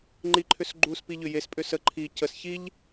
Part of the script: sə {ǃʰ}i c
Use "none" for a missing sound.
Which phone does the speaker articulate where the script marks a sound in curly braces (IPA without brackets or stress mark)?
ǃʰ